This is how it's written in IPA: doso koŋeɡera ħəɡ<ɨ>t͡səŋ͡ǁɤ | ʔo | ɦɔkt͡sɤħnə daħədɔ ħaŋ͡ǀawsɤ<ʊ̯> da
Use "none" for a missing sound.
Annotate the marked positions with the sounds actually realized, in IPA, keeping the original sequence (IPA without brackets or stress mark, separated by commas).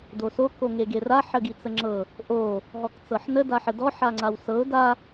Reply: i, ʊ̯